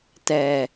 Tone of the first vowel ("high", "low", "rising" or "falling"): low